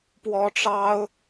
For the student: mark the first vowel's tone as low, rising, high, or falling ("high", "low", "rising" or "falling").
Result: high